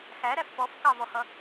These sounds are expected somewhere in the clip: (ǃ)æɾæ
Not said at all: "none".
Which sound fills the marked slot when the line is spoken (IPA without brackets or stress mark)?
x